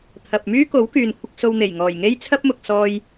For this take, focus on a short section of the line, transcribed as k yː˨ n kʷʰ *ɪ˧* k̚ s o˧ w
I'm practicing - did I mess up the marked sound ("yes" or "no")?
no